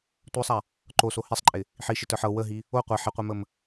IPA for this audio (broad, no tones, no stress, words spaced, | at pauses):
tʷə˞sˤa | ǃoso hesˤǃʼɪ | ħiʃɪtə˞ħ ɤ wəɦi | o qʷa ħɪqʷeməm